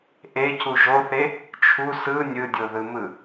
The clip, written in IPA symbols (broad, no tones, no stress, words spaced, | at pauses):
ʔecu ʒoθe | t͡ʃʰu sɯ nʲɯdʲoðɯmɯ